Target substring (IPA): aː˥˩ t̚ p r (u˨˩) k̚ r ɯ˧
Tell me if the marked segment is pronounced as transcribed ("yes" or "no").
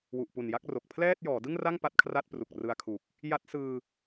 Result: yes